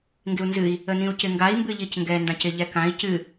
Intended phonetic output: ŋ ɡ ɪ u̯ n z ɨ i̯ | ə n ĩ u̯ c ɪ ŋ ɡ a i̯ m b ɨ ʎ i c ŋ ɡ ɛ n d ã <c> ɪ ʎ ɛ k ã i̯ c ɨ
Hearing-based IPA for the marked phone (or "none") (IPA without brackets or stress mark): c